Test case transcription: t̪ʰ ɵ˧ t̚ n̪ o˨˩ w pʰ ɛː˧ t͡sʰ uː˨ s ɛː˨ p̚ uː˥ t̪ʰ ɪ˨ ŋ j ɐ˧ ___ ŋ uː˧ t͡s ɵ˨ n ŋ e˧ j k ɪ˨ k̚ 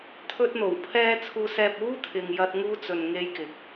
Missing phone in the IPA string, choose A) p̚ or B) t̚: B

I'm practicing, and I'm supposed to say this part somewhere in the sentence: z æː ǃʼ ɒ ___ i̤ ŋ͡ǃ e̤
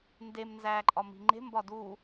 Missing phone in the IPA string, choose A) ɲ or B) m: B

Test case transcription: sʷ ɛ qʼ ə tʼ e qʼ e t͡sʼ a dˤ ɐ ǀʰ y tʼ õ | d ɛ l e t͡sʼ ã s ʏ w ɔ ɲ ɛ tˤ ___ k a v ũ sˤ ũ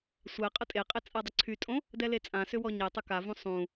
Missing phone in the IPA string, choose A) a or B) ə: B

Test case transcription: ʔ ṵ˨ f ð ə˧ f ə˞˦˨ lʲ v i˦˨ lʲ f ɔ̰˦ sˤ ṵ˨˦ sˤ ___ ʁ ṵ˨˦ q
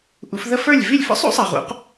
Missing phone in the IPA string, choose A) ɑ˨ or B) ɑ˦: A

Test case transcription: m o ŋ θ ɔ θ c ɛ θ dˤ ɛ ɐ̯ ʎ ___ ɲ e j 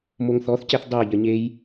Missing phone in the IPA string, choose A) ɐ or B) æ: A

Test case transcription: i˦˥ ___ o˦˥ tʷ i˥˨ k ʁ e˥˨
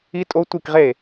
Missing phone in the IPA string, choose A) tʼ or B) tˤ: A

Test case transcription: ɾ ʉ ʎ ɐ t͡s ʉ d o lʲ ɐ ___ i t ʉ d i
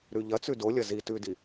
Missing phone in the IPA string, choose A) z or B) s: A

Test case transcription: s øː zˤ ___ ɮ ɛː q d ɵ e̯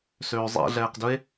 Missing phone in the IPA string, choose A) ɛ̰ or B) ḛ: A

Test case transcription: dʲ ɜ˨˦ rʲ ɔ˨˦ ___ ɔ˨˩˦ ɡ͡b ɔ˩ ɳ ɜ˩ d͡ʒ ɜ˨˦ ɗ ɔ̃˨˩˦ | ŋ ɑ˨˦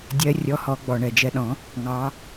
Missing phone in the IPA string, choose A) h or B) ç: A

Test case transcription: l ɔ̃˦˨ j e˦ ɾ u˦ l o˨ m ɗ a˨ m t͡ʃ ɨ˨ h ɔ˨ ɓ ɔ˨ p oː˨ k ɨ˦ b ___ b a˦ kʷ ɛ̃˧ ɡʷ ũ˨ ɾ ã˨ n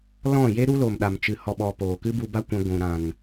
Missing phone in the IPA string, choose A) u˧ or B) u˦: A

